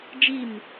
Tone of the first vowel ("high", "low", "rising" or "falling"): falling